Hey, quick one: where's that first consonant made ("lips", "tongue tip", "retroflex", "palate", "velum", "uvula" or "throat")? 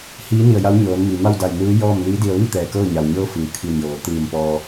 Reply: throat